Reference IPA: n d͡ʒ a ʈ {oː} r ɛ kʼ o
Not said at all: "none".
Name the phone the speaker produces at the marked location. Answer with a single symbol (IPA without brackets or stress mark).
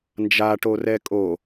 o